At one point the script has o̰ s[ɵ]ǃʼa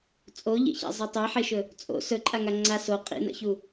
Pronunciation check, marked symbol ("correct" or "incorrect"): correct